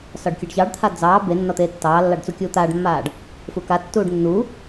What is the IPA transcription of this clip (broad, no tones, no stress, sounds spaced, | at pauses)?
s ɒ ɖ kʲ e ɖ ç ɑ ɖ t̪ʰ a d͡z ɑː b e nː ɒ t̪ eː tː ɑː lː ɑ ɖ t͡s u kʲ uː t̪ aː ɖ mː aː ɖ | f u k a tː uː ɖ nː u